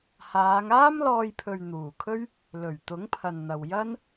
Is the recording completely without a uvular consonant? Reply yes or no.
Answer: yes